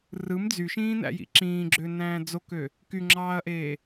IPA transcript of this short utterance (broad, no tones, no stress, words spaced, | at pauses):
rɯm d͡zyʃĩːnæ̰jḭ ǁĩːɡ͡ǁønæ̃ː d͡zokø | kyŋ͡ǁɑːɐ̯ʔeː